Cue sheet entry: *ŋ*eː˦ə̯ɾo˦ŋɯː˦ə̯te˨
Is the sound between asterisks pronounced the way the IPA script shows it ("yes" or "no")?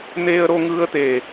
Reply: no